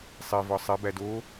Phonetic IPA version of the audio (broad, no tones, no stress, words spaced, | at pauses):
sˤevɒ sˤebæ do